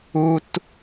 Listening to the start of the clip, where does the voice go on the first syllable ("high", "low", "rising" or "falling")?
high